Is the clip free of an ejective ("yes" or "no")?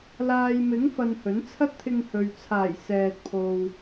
yes